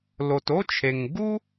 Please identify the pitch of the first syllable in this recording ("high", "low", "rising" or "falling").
low